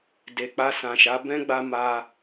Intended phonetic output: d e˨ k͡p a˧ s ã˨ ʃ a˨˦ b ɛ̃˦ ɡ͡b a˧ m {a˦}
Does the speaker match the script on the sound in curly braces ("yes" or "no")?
no